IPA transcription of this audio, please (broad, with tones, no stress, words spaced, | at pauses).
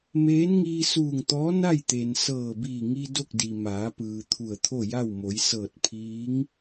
meː˧˥nŋiː˧suː˧˩ŋt̪ɔː˧˥ na˥˨jt̪e˩n sɤː˧˩biː˧˩ŋi˧ do˥˨k̚di˩ maː˩˧pɯː˩ t̪ʰu˧˩ə̯t̪ʰo˥˨ja˥˨w mo˩˧jsɤː˧˩t̚ pʰiː˧˥ŋ